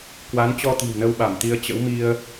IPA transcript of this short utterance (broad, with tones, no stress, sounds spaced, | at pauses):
k w a˨˦ n t͡ɕ ɔ˧ t̪ i̤˨˩ w n ə˧ w ɓ a˧˩ m t̪ i˨˦ ə̯ t͡ɕ ə̰˧˥ w m i˧ ə̯